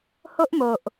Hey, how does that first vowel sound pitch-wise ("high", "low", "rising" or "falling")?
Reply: high